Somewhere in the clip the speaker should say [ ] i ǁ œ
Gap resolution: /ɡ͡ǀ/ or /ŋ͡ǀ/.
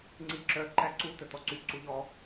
ŋ͡ǀ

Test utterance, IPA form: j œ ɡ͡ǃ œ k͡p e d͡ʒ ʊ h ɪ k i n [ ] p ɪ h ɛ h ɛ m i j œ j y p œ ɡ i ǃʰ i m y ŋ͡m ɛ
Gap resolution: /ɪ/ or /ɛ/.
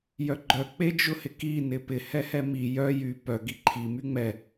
ɪ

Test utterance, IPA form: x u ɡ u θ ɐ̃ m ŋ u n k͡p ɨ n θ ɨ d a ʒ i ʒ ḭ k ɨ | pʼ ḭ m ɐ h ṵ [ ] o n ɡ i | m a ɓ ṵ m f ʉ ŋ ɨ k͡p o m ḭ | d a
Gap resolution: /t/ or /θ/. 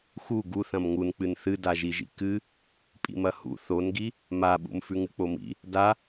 θ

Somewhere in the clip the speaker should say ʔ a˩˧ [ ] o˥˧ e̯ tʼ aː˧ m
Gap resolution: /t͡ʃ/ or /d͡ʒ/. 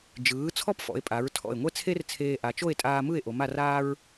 t͡ʃ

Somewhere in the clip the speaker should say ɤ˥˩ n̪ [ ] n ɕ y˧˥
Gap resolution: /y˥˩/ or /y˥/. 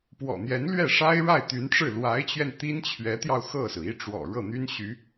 y˥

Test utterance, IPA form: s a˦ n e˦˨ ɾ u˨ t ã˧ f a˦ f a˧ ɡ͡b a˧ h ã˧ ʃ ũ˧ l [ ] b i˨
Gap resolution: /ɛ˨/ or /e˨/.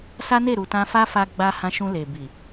e˨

